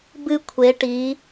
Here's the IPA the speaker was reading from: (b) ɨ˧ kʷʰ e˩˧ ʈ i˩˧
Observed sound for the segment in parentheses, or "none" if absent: b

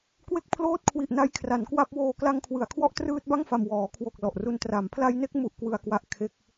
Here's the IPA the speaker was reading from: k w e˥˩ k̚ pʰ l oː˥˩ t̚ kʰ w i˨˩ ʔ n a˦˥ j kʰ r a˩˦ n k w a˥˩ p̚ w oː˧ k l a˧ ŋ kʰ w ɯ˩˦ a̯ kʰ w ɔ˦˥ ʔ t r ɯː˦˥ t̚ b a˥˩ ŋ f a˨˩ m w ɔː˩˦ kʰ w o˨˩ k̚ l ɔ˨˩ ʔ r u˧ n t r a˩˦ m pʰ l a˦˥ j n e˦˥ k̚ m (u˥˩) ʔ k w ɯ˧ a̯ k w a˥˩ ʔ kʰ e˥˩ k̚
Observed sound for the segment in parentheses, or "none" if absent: u˥˩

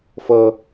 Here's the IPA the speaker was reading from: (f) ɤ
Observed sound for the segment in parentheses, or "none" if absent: f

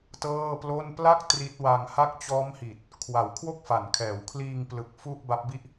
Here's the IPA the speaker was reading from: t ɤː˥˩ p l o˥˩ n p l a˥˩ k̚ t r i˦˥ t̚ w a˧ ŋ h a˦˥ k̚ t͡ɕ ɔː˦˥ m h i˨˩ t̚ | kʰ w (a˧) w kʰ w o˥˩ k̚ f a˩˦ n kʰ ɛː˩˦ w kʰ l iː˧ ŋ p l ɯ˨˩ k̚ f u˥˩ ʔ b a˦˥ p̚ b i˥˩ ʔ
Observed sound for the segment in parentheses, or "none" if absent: a˨˩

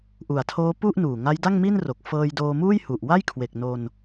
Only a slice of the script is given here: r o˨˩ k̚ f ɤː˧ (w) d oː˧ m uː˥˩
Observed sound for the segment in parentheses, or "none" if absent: j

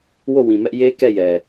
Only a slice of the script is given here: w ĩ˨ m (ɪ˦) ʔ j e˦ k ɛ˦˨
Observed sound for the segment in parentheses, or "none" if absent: ɛ˦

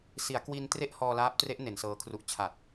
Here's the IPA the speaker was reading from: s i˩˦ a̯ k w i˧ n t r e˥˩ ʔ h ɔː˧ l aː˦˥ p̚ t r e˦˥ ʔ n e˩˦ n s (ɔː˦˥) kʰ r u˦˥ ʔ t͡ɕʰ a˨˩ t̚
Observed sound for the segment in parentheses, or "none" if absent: ɤː˦˥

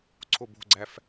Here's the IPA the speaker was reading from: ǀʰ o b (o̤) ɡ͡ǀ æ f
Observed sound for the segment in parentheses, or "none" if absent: o̤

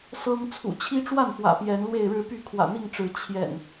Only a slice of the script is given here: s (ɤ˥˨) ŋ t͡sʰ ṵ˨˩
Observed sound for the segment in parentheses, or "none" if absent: ɤ˦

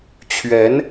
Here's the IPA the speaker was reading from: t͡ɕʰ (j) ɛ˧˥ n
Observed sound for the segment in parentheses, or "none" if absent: ɥ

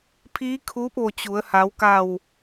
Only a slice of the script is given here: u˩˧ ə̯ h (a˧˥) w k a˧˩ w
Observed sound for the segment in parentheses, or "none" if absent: a˩˧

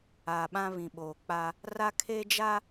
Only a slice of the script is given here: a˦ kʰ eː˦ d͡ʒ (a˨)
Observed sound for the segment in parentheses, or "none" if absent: a˦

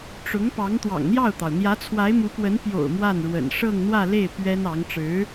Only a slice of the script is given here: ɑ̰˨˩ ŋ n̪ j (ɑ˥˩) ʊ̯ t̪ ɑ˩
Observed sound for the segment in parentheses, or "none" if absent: ɑ˥˩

